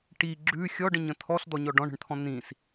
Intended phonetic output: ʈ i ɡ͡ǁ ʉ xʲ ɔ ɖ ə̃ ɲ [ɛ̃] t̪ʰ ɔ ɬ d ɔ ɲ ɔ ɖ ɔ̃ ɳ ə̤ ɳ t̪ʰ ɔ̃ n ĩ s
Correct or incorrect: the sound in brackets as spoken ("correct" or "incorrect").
incorrect